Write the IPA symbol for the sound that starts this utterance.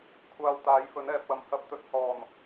kʷʰ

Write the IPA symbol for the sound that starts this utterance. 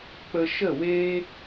k͡p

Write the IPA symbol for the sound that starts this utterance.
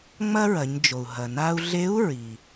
ŋ͡m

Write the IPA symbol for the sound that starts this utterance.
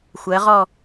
xʷ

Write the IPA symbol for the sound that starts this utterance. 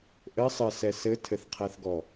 ʔ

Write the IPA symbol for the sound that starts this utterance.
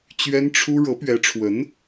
t͡ɕ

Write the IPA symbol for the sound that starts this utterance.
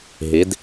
ɦ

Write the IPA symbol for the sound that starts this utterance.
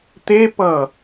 t̪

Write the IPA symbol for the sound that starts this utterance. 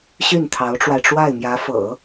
ɕ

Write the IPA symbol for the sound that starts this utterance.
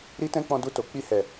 ɾ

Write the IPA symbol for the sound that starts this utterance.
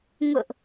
ŋ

